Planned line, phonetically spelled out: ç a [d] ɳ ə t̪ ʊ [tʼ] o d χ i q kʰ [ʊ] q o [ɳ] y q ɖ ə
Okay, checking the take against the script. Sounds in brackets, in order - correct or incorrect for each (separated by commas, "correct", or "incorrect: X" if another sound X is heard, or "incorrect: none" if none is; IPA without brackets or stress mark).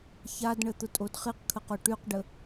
correct, correct, incorrect: ə, incorrect: ʈ